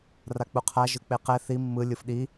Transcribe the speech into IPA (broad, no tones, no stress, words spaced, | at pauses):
rak͡puqʰa ʒɯk͡peqɛ θi mːɯ lʲɯfɗi